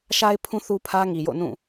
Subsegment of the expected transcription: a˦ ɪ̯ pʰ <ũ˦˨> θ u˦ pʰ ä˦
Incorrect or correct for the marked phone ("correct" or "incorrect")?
incorrect